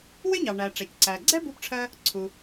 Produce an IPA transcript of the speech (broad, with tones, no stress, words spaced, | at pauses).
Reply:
wɪ˥ɲɑ˩ ɳæ˩ ʈ͡ʂɛ˩cǀæ˩ɡ͡ǀɛ˥ bu˥pʈ͡ʂʰɜ˥ | ǀʰu˩